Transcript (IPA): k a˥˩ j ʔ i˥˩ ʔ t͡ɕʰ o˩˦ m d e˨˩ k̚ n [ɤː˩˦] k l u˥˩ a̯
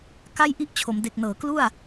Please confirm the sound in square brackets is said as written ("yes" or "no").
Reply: yes